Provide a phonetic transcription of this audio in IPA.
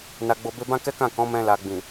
n a˨ ɡ͡b o˨ b e˧ b ã˦ k ɛ˦ k ã˦˨ k ɔ̃˨˦ m ɛ̃˧ l a˨ ɡ͡b ĩ˨

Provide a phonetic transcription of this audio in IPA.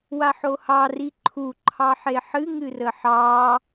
w a ħ o h ɑ r i ǃʰ u ǃʰ ɑ ħ e ħ ɨ ŋ ɨ r ə ħ ɑ

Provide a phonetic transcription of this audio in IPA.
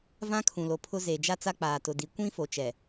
v ã˦ kʰ ũ˨ l o˨ pʰ ʊ˦ z eː˨ d͡ʒ a˦ t͡s a˦ k͡p aː˨ t ʊ˨ d i˨ kʷ ĩ˦ f o˨ t͡ʃ ɛ˨

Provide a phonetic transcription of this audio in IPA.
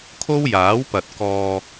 kʰ o˥ w j aː˨˥ w p ɐ˨ t̚ k ɔː˨

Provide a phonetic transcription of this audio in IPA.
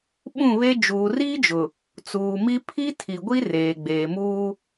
ɓ ũ˦˨ β e˦ d͡ʒ uː˨ r iː˦ d͡ʒ ʊ˨ | t͡s uː˨ m i˦ pʰ i˦ tʰ i˨ ɡʷ i˦ r eː˨ ɡ͡b eː˨ m uː˦

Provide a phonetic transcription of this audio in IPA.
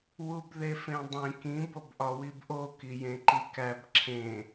w u b ð e f ẽ dˤ ĩ k ĩ b o b ʔ ɒ w i b ʔ o k i j ẽ ǃ i k æ b ǁʰ ẽ

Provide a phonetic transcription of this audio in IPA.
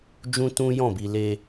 d͡ʒ ũ˦ t ũ˦ j ɔ̃˦˨ b i˧ l e˧

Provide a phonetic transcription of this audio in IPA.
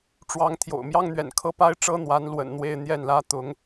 ʈ͡ʂ w ɑ˧˥ ŋ t̪ʰ j o̰˨˩ ʊ̯ m j ɑ˥ ŋ n̪ ɥ ɛ̰˨˩ n kʰ ɤ˥ p a˥ ɪ̯ ʈ͡ʂ ɤ˥ n̪ w a˧˥ n l w ə̰˨˩ n n̪ w e˥˧ ɪ̯ n̪ j ɛ˥˩ n l ä˥ t̪ ʊ˧˥ ŋ

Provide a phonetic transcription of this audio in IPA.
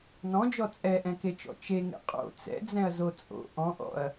n ɔ̃ d͡ʒ ɔ t͡sʼ ɛ ʔ ɛ̃ k e t͡ʃ ɔ̰ t͡ʃ e ŋ ḛ qʼ o̰ t͡s ɛ̰ d͡z ɛ̃ ɐ̯ z o t͡sʼ o̰ ʔ ɔ̃ ʔ ɔ̰ ɐ̯

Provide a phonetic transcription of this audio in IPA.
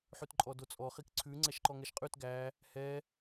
ħ ʉ t ǃʼ ɔ d o t͡sʼ ɔ χ i k ǀʰ ʉ ŋ͡ǀ ɛ ʃ ǃ ɔ ŋ ɛ ʃ qʼ ʉ t ɡ æ | h ɛ

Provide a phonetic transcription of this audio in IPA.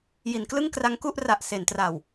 j i˩˦ n k l ɯ˥˩ ŋ k r a˦˥ ŋ k u˥˩ ʔ r a˨˩ ʔ s e˩˦ n t r aː˨˩ w

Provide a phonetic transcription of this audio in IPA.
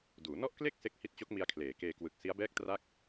d uː˩˦ n ɔ˥˩ ʔ k l e˥˩ k̚ s e˦˥ k̚ h i˦˥ t̚ t͡ɕ o˦˥ k̚ m i˧ a̯ kʰ l eː˩˦ k eː˧ k w ɯ˨˩ k̚ s i˦˥ a̯ b ɛː˥˩ k̚ t r a˥˩ k̚

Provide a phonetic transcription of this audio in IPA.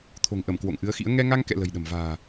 t̪ʰ o̤˨˩ ŋ ʔ ə˧˩ m k w o̰˧˨ ŋ ʔ ɨ˨˦ ə̯ x ḭ˧˥ ə̯ ŋ ɛ˧ ŋ a˧ ŋ k ɛ̰˧˨ l ə̤˨˩ j ɗ ə̤˨˩ m v a̤ː˨˩

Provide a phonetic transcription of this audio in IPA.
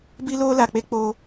b i˦ l oː˦ l a˨ k͡p e˦ k͡p oː˦

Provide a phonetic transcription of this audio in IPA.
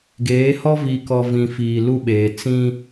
ɡ eː˨˦ h ɔ˦ v i˨ k ɔ˨ v ĩ˨ f iː˨ l u˦ ɓ eː˨ t͡s ĩ˦

